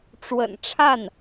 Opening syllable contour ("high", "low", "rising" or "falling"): low